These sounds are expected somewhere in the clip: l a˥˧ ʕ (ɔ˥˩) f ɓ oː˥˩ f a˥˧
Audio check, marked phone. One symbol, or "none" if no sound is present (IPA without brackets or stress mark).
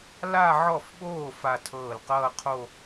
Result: ɔ˥˩